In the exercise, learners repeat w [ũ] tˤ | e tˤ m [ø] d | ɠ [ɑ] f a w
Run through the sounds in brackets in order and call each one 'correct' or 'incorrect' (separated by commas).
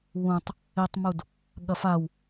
correct, incorrect, incorrect